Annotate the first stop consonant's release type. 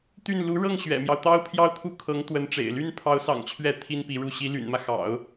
plain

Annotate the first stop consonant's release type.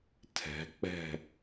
aspirated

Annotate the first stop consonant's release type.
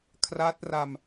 aspirated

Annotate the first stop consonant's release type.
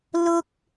plain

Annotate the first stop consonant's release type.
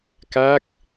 plain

